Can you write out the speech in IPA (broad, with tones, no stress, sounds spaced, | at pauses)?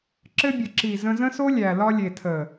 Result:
ǁ ɘ˧ bʲ ə˨ ǁ i˨ z ə̃˧ z ə̃˦ s o˦ lʲ æ˨ l ɒ˧ lʲ e˨ tʰ ə˨